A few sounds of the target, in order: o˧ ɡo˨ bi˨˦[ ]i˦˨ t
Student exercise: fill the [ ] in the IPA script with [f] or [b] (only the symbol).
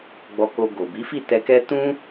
f